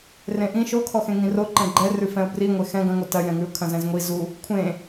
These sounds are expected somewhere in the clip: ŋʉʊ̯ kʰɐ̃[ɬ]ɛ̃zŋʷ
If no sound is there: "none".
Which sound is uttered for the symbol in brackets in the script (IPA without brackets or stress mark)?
z